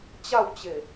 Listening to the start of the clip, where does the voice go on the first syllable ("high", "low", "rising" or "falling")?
falling